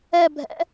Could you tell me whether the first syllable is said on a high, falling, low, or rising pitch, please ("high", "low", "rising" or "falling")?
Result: falling